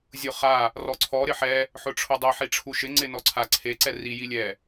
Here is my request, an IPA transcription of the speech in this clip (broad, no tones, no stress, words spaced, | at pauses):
zʲʊχa | rɔǀʰɔ ɾɪħɛ | ħʊʈ͡ʂʰʊdˤɛ ħiʈ͡ʂʰuʃɪ ŋ͡ǀɪ nɔǀʰa ǀʰe ǀɛri jilʲɛ